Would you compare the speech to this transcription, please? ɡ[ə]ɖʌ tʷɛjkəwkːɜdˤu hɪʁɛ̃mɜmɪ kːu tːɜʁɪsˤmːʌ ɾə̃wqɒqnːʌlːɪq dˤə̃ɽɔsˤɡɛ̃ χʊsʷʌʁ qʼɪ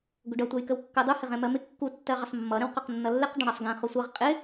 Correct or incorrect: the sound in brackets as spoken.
incorrect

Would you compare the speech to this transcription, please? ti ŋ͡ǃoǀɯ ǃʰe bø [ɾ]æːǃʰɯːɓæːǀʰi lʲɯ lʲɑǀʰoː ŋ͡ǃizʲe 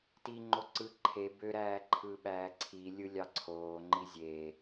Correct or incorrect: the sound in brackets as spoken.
correct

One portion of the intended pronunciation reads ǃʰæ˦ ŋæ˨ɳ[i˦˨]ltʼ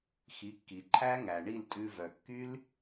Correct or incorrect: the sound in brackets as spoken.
correct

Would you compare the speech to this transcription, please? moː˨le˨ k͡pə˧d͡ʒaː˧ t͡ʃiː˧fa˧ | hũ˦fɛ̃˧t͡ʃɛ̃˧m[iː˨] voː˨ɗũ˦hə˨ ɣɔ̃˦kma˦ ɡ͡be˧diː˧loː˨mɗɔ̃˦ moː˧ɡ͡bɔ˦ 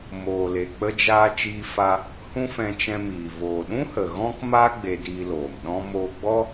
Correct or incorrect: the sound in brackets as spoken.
correct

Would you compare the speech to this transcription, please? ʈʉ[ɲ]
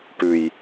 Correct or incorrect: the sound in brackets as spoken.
incorrect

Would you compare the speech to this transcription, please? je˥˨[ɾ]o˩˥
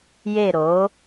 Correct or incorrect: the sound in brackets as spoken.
correct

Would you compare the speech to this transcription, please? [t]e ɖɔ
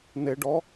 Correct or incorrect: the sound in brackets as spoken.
incorrect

